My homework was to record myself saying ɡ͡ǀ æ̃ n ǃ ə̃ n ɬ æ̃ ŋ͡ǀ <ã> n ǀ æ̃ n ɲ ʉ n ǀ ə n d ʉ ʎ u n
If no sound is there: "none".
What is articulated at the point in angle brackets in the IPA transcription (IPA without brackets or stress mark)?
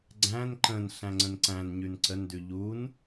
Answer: ə̃